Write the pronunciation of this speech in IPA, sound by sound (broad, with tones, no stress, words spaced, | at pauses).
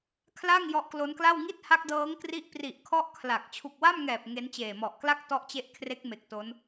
kʰla˥˩ŋ jɔ˦˥ʔklo˦˥nkla˥˩w ŋi˥˩t̚ha˦˥k̚dɤː˦˥ŋ kri˥˩ʔ pri˨˩ʔkʰɔ˦˥ʔ kʰla˨˩k̚ t͡ɕʰu˨˩k̚wa˥˩mŋɛː˨˩p̚ ŋe˦˥nt͡ɕeː˨˩ mɔ˨˩ʔkla˥˩k̚ tɔ˦˥ʔt͡ɕe˦˥ʔkʰre˦˥k̚me˨˩k̚ to˦˥n